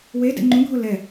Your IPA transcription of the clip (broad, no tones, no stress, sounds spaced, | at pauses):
w e d ɛ̰ ŋ͡ǃ ũ ɡʱ o l ɛ